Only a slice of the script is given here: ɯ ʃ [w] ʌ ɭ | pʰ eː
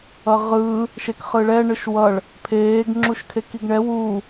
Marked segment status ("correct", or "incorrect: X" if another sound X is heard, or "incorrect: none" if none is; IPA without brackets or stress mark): correct